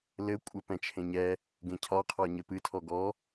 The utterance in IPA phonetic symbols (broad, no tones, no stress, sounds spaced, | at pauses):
l ɘ kʷʼ ɘ p ɛ̃ t͡ʃʰ ẽ ɲ ɛ | ɡ ẽ cʰ ɒ qʰ ɒ ɲ ɘ p ɨ tʰ ɔ ɡ ɔ